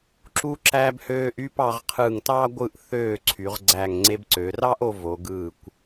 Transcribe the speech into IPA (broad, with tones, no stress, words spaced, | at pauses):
ǁu˧ǁæ˧bhøː˧ʔ y˥˧pɑ˧ʁqʰɯ˧˩ŋtɑ˥ ɡʷɯ˧˩ʔθøː˧˩ ǀʰy˩˧ʁɡ͡ǀæ˧˩ŋ ŋ͡ǀe˧bǀø˩˧rɑ˥ʔo˧ vo˩˧ɡɯː˧˩kʷ